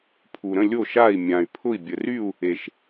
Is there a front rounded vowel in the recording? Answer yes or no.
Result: yes